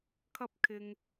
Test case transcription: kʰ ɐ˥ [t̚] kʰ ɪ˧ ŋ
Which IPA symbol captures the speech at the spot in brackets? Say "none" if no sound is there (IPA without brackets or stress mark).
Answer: p̚